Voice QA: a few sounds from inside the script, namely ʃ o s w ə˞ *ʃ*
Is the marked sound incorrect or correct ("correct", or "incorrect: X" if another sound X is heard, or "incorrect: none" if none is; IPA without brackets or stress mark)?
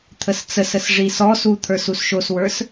incorrect: s